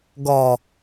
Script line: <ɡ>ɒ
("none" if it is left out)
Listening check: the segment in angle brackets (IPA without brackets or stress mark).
ɡ